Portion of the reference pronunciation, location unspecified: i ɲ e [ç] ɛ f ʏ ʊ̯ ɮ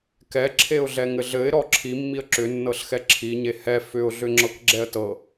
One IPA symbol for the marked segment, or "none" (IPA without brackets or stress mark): h